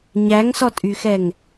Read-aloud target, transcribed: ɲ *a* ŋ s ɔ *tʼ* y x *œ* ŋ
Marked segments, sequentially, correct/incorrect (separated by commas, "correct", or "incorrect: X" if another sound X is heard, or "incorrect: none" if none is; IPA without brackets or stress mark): incorrect: æ, correct, incorrect: ɛ